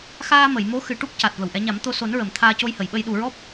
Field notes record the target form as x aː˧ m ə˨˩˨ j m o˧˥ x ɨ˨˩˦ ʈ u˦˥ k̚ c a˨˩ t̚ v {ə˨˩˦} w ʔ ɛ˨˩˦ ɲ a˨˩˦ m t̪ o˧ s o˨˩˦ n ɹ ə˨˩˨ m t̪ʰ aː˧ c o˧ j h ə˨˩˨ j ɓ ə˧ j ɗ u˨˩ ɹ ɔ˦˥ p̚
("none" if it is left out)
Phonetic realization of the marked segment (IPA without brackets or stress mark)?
ə˨˩˨